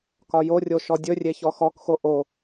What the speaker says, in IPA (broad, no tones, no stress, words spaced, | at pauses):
kɒjorʲo ʃɔdʲɵrʲe çɔxɔkxo ʔo